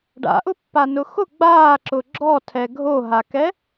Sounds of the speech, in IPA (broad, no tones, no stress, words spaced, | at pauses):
ɖa̰ʔʊpːanʊ xʊ ɡ͡baːǁʊ ɡ͡ǁɔtʰɛ ɡʱoɦakɛ